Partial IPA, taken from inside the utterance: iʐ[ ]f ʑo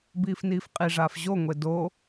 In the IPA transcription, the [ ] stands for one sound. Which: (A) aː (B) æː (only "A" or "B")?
A